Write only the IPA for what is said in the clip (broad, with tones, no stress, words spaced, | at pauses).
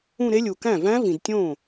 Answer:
ũ˥˧ɾe˦˥ lʲu˨kæ̃˥˩væ̃˦˥ vĩ˨dtʲõ˥˩